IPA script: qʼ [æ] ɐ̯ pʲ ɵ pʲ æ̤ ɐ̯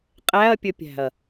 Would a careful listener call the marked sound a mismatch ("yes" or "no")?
no